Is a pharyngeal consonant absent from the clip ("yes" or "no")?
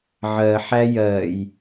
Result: no